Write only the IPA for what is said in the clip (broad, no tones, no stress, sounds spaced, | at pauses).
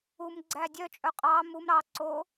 u m ɡ͡ǀ æ dʲ œ t͡ʃʼ œ qʼ ɑ m u m ɾ ɑ ǀ o